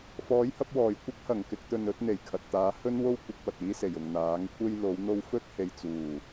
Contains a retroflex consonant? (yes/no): no